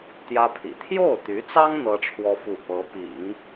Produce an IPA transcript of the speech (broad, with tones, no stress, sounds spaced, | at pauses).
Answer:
t̪ j ä˥ pʰ ḭ˨˩ t̪ʰ j o˥˩ ʊ̯ t̪ y˧˥ t͡s ɑ˥ ŋ n̪ ɤ˥ ʈ͡ʂʰ w ɔ˥ f u˥˩ p ɤ˧˥ p ḭ˨˩˦ ŋ